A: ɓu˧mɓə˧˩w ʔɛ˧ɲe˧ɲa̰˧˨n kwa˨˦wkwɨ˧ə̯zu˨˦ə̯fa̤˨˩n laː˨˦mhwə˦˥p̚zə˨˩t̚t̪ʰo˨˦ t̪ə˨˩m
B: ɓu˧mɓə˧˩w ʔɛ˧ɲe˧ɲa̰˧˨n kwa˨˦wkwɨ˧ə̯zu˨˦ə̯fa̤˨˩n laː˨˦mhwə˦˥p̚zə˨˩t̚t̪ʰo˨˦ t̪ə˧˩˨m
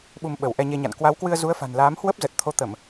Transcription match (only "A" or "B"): B